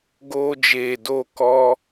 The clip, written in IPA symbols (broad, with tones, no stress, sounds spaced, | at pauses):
ɡ oː˧ d͡ʒ eː˨ d o˦˨ k ɔ˧